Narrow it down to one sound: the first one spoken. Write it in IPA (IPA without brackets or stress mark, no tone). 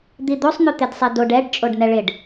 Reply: d̪